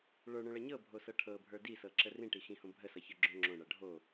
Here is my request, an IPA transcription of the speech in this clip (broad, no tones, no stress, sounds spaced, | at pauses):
ɭ ə˞ ɳ õ ɭ ʌ ɲ ɤ bʱ o s ɤ ʈʰ ɤ bʱ ə˞ d i s ɤ ǁ ə r ĩ ʈ i x ĩ h õ bʱ ə s ʌ ç ə˞ ɡ͡ǁ õ ŋ͡ǁ õ ɳ ʌ ɖʱ o